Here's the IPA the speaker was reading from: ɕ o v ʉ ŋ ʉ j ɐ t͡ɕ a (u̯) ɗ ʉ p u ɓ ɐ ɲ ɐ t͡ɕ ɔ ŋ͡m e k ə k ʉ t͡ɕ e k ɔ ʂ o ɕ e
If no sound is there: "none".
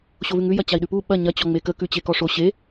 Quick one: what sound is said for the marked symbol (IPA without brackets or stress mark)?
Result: i̯